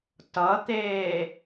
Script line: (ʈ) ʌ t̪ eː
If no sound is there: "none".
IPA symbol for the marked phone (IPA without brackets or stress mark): t